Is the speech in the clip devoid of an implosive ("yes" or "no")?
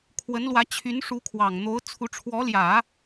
yes